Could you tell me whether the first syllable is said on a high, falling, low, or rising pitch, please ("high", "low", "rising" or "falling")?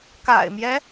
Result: low